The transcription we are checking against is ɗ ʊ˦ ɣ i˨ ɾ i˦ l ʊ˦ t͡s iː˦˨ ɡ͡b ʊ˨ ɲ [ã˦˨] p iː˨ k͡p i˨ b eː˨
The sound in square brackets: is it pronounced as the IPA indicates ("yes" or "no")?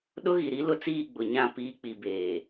yes